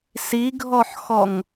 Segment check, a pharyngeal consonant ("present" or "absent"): present